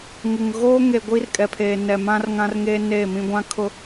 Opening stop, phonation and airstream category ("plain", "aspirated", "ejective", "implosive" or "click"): plain